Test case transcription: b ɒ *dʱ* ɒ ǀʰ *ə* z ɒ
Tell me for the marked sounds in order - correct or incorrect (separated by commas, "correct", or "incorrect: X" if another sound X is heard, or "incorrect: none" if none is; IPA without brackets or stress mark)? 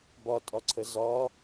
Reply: incorrect: tʼ, correct